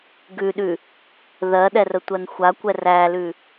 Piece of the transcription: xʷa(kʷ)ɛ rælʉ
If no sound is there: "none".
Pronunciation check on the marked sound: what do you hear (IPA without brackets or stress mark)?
kʷ